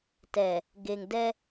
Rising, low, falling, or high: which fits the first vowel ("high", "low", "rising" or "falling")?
low